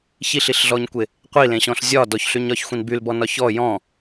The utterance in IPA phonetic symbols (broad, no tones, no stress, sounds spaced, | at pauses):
ç i ɬ i ɬ ɮ ɔ ɲ kʷ e | qʷ i l ẽ ɕ ɔ̃ ɬ zʲ ɒ d ɔ ç ɬ y ɲ ɒ ç xʷ ĩ n b y l b ɔ n ɒ ç ɔ j ɔ̃